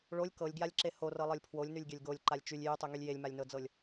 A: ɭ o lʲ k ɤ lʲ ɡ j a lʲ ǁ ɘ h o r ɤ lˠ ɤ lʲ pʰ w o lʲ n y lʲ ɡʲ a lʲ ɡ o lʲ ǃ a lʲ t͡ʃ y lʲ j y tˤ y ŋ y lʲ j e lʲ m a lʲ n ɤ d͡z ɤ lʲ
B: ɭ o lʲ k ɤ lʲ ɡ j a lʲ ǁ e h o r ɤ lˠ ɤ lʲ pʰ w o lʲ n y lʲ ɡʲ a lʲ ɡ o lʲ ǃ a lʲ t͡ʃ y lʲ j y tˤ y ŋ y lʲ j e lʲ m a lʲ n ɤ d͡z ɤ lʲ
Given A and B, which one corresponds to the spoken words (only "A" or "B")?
B